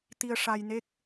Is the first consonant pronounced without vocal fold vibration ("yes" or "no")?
yes